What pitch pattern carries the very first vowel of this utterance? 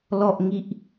low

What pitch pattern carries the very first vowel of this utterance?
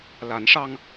rising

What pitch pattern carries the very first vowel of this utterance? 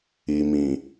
low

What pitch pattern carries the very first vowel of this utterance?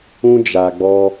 high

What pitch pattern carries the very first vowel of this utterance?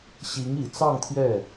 rising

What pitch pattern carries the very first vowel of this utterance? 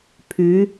rising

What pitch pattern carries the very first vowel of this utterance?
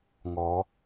rising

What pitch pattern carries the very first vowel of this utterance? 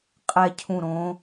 falling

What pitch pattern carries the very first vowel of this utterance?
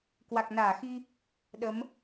low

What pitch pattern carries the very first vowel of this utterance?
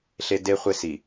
high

